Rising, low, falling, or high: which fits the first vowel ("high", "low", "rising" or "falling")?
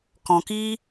low